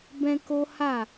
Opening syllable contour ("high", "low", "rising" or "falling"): high